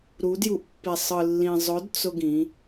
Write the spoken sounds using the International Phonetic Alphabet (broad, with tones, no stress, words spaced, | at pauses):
ɾu˨˦dju˨ʔpːi˨sˤɯ˨ lːĩ˨zˤʊ˨˦d t͡sʊ˦ɡĩ˨˦